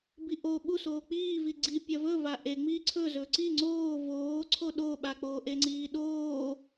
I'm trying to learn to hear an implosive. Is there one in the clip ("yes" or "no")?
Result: yes